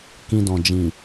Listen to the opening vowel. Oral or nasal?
nasal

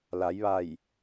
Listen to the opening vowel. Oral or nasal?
oral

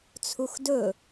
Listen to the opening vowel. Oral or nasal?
oral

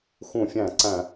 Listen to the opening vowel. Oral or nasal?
nasal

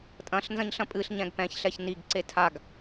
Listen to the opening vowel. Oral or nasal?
nasal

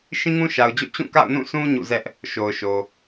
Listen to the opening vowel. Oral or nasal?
nasal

